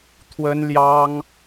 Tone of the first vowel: high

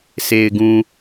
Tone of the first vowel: low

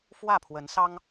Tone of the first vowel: falling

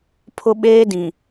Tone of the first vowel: high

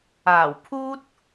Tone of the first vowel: low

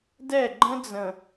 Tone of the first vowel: falling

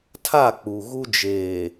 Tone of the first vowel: falling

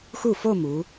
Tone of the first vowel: falling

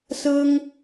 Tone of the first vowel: high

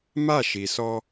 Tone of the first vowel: falling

